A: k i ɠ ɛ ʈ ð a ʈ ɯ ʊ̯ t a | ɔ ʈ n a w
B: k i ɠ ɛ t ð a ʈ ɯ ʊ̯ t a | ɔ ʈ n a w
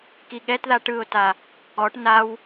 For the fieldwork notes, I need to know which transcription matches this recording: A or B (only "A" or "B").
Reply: B